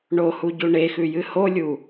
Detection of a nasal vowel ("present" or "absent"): absent